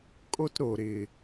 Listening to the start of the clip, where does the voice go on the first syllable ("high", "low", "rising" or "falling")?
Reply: high